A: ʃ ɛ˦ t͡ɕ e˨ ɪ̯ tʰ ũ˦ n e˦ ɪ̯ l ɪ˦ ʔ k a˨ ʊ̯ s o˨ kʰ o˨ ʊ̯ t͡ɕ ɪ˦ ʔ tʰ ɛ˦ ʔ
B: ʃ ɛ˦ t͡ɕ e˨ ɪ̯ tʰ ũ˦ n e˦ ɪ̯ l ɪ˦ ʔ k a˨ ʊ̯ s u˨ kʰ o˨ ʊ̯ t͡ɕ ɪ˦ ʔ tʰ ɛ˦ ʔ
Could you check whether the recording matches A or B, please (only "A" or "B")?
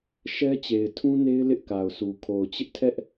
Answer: B